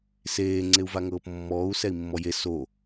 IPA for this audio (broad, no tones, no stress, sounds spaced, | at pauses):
s eː ŋ͡ǀ e u̯ v a ŋ ɤː p mː ɔː u̯ s ɛ i̯ mː ɔ j e s o